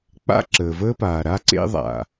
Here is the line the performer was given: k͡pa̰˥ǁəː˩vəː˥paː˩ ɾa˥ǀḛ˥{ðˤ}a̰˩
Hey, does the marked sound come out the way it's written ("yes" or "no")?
yes